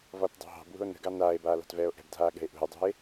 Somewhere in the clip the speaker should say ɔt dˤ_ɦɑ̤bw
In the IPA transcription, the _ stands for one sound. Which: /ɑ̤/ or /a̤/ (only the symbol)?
ɑ̤